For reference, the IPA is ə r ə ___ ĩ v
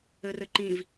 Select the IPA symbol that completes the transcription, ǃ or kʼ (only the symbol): ǃ